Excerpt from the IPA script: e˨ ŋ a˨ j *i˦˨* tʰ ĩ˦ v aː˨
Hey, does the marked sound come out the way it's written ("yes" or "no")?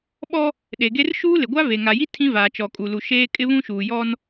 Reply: no